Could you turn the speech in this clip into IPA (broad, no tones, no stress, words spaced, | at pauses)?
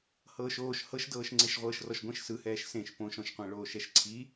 hɤːʃoːʃ hɤʃdɤːʃŋ͡ǀeʃ ʁʷɤːʃrɔʃɡʷẽʃ sɯhɛːʃ sẽʃ põʃɔ̃ʃqʷɛ̃ɭoːʃ ɛʃǀʰi